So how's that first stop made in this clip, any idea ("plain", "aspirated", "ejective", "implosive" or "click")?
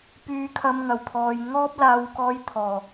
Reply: plain